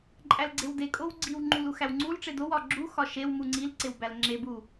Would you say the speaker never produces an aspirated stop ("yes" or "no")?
yes